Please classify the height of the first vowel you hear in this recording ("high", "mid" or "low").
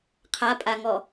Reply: low